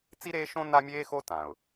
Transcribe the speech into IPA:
t͡s i˦ ɾ eː˦ ʃ õ˦ n a˦ mʲ eː˦ x o˦ t ã˨ ʊ̯

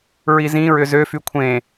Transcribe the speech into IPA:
ɹ i z ĩ ɹ ʏ z ø f y kʷʰ ẽ

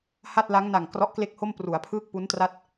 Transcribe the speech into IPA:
h a˥˩ t̚ l a˦˥ ŋ n a˨˩ ŋ k r ɔ˦˥ ʔ k l e˥˩ k̚ h o˥˩ m p r u˩˦ a̯ pʰ ɯː˥˩ k̚ p u˦˥ n t r a˥˩ t̚

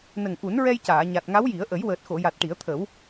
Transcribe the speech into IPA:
n ə˨˩ ŋ ʔ u˨˩˦ n ɹ ɛ˧ j c aː˨˩˨ ɲ a˨˩ t̚ ŋ a˧˥ w j i˨˩˦ ə̯ ʔ ə˨˩˦ j w əː˨˩ t̚ x o˨˩˨ j a˨˩ t̚ ʈ i˨˩˦ ə̯ t̪ʰ ə˨˩˦ w

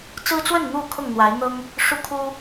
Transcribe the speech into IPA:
t͡s ɹ̩˦ t͡s w ə˥˨ n n̪ u˥˨ kʰ ʊ˥˨ ŋ n̪ w a˨˦ ɪ̯ n̪ ɤ˦ ŋ | ʂ u˦ kʰ u˦

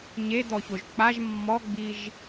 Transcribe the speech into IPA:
ɲ e d̪ ɔ ç o ʒ k͡p a ʒ mː ɔ ɡ͡b i ʒ

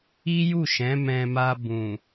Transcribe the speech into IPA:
i˦ j u˦˨ ʃ ɛ̃˨˦ m ɛ̃˧ m a˧ b ũ˨

